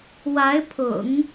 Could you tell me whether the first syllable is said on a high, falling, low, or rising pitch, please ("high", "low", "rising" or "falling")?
rising